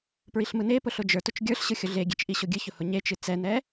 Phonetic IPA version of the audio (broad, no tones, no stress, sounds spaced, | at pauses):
p ɹ i ɬ m ɯ n e p ʊ ɬ ʊ d͡ʒ ə˞ t ʊ t͡ʃ ɡʲ ə˞ ɬ ɕ ɯ xʲ ʊ ɮ e ɡʲ e t͡ʃ ʔ i ɕ ʊ ɡʲ ɨ ç ʊ h ʊ ɲ e t͡ʃ ɨ t͡s ɛ n ɛ